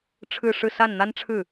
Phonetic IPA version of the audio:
ʈ͡ʂʰ ɻ̩˥˧ ʂ ɻ̩˥˧ s a˥˩ n n̪ a˥ n ʈ͡ʂʰ ɻ̩˥˩

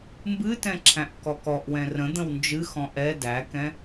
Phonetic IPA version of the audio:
m b ɨ t ɛ̃ ǁʰ æ̃ ʔ k ɔ k ɔ ʔ w ɛ̃ r ə̃ d̪ ə̃ w n d͡ʒ ɨ x ɔ̃ ʔ ɛ d æ k ɛ̃

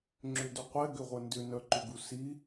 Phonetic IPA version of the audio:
ŋ͡ǁ ʏ d ʏ qʷ ɛ ɡ ʏ ʁʷ ə n d ʏ n œ ǃ ʏ ɡ u s i

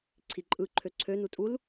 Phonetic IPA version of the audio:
ǀʰ i ǃʼ ɯ ǃʰ ø ǀʰ ø n u tʼ u l

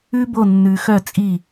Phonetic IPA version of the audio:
ʉ˥ b o˥˩ nː ʉ˧ x œ˥˩ t͡sʼ i˥˩

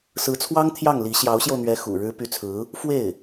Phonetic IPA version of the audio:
s ɹ̩˧˥ t͡sʰ w ɑ˥ ŋ t̪ʰ j ɑ˥˩ ŋ l i˧˥ ɕ j ɑ˧˥ ʊ̯ ɕ j o˧ ʊ̯ n̪ ɥ ɛ˧˥ x ṵ˨˩ ɻ ɻ̩˧˥ p y˧˥ t͡sʰ ɹ̩˧˥ | f w e˥˩ ɪ̯

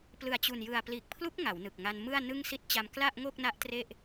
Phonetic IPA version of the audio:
p l ɯ˨˩ a̯ t͡ɕ u˨˩ n j ɯ˨˩ a̯ p l iː˨˩ k̚ pʰ l u˦˥ k̚ ŋ a˩˦ w n ɯ˨˩ k̚ ŋ a˧ n m ɯ˥˩ a̯ n ɯ˥˩ ŋ s i˦˥ t̚ t͡ɕ a˧ m k l a˥˩ ʔ ŋ o˥˩ k̚ n a˦˥ ʔ t r e˥˩ ʔ

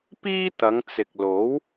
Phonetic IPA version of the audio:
p iː˥ t̪ ɐ˨˧ ŋ t͡s ɪ˨ k̚ l o˨˥ w

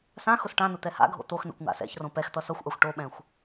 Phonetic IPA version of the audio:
s ã x ʊ s ʈ ã n ʊ t̪ ɛ h a̰ ɡʱ o̰ t̪ o x n ɛ̰ kʷ ŋ a̰ s ɛ̰ ç r õ p ɛ x t̪ ʌ s ʌ xʷ ʔ a xʷ ʈ o ɓ ɛ̃ xʷ

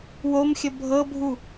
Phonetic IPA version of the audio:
w o m xʲ ə bʱ ɤ bʱ u

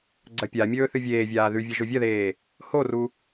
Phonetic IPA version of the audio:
ɡ͡ǀ ɐ pʲ a mʲ ɵː θ ɨ vʲ eː vʲ aː ð ʉ vʲ ɐ ʒ o vʲ ɐ ð eː | h o r u

